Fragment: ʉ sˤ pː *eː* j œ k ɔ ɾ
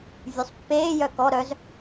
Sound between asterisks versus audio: correct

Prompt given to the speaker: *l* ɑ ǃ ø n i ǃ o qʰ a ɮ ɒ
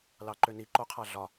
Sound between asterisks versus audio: correct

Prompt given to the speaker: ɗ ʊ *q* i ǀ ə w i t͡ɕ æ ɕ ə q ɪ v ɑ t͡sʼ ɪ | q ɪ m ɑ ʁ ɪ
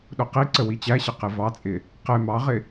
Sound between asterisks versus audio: correct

